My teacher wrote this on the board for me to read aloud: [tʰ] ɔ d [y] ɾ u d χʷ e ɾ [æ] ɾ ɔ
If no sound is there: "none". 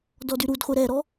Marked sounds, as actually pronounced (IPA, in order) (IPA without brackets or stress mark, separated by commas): d, y, ɛ